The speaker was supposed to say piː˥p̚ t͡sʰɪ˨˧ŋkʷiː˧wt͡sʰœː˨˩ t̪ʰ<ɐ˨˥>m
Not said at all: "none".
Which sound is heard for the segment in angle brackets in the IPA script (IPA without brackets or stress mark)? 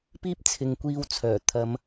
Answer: ɐ˨˧